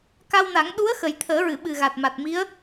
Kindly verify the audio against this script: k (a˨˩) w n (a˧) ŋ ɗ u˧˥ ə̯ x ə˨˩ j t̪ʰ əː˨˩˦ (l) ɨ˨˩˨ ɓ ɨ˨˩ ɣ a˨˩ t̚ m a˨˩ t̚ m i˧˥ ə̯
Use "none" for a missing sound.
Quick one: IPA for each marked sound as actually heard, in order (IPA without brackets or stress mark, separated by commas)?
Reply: a˧, a˨˩˦, ɹ